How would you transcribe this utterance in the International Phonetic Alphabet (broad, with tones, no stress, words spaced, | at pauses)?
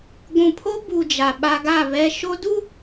ɡʷũ˨pʰo˦bu˨ d͡ʒa˨ɓa˦ ɡa˦˨ βɛ˨ʃo˦du˦